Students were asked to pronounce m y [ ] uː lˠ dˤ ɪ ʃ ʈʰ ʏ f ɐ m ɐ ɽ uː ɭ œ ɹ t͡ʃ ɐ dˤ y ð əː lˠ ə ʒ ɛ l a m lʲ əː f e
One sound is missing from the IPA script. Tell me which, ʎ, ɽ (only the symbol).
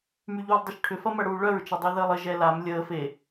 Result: ʎ